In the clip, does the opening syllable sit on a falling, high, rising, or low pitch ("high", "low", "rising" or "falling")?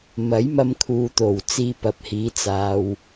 rising